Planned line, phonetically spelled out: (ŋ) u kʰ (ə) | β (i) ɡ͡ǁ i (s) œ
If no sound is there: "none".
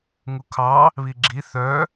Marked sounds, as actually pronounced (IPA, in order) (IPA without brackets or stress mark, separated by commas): ŋ, ɑ, i, θ